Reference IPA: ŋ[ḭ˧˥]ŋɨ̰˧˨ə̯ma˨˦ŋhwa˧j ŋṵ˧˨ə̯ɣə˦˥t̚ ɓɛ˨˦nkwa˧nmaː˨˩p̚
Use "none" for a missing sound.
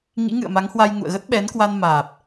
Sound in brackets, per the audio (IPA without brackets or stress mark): ḭ˧˥